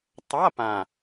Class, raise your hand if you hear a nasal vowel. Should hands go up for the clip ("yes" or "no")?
yes